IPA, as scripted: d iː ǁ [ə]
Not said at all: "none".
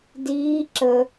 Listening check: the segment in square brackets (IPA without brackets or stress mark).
ə